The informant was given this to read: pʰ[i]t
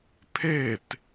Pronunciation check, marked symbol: incorrect: e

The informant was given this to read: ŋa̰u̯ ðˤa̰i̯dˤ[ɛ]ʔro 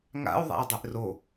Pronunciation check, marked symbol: incorrect: e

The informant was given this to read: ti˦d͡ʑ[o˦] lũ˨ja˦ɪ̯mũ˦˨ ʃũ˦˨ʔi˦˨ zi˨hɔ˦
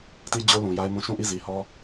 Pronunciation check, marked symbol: correct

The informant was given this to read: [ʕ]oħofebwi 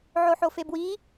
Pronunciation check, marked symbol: correct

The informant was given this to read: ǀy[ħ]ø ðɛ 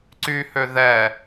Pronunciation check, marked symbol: incorrect: h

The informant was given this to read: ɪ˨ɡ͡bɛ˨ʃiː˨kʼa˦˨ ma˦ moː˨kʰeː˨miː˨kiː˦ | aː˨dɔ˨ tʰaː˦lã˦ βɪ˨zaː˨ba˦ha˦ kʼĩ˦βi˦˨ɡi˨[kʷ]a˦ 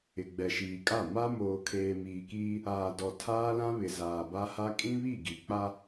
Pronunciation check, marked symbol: incorrect: k͡p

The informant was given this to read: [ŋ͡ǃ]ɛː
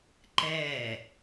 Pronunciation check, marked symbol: incorrect: ǃ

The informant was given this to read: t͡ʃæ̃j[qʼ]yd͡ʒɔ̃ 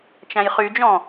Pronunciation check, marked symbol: incorrect: χ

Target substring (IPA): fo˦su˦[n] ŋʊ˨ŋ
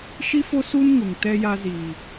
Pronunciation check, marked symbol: correct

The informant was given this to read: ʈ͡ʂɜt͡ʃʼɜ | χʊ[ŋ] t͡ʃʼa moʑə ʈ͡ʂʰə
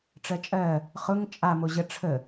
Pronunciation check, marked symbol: correct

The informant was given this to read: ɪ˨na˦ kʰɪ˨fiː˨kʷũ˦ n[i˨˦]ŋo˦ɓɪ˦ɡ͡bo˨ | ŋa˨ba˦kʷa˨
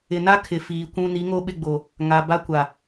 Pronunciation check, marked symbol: correct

